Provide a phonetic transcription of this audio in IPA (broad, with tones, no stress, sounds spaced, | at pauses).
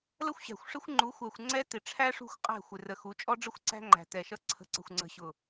l ə˦ xʷ ɕ æ̤˨ xʷ ʂ ɪ˦ xʷ ŋ͡ǃ u˨˦ xʷ æ˨ xʷ ŋ͡ǀ ɛ˦ t ɪ˨ ʈ͡ʂʰ æ˦ ʂ ṳ˦˨ xʷ qʼ æ̤˦˨ xʷ ɪ˨ r ə˨ x u˨˦ t͡ʃʼ ɔ˦ ɖ͡ʐ ə˦ xʷ ǀ æ̤˦ ŋ͡ǃ æ̤˨ t ɛ˨ ʃ ʌ˦ ǀʰ ə̤˨˦ ǀ ə̤˨ xʷ ŋ͡ǀ ə̤˨ ɕ ʊ˨